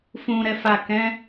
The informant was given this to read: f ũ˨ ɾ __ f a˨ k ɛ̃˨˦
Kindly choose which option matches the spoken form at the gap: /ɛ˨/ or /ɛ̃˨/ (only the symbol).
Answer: ɛ˨